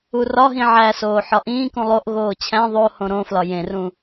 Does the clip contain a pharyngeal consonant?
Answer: yes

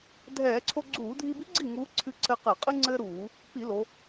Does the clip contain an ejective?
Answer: yes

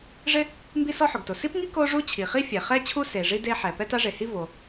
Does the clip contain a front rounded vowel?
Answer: no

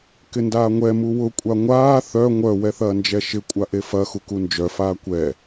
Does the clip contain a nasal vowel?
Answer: no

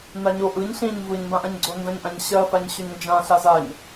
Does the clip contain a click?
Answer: yes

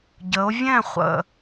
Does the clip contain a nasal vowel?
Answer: yes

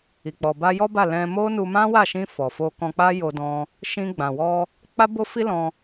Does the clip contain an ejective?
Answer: no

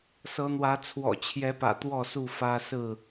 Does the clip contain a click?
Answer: no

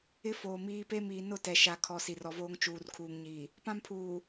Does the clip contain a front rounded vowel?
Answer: no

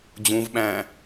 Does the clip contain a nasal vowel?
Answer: yes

